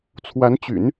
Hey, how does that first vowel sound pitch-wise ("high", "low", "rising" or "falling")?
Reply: rising